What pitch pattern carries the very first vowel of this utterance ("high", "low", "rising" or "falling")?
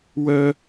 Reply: high